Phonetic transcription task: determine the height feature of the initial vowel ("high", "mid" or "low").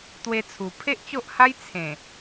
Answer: mid